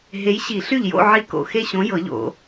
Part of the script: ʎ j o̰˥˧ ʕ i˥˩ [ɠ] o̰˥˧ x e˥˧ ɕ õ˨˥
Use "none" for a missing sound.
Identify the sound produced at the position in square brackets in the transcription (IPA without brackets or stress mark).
k